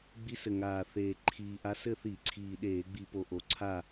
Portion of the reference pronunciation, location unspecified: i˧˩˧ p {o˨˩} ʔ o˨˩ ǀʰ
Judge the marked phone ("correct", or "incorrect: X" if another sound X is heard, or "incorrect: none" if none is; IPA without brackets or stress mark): correct